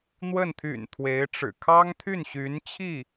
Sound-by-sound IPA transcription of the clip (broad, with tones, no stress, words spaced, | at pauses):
n̪wə˥˩n t̪ʰy̰˨˩n t̪ʰwe˧˥ɪ̯ʈ͡ʂɻ̩˨˩ kʰɑ˥ŋt̪ʰy˥˩n ɕy˧˥n t͡ɕʰi˥˩